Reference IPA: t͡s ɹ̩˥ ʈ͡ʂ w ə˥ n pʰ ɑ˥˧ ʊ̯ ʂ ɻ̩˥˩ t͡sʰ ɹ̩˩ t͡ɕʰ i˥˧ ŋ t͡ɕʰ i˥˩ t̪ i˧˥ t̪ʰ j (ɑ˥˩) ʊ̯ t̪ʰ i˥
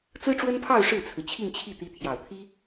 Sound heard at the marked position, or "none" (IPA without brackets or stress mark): ɑ˨˩